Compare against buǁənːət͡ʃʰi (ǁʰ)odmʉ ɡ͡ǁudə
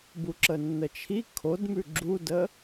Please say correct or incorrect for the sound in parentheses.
incorrect